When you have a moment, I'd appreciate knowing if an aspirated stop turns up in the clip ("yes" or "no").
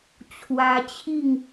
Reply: yes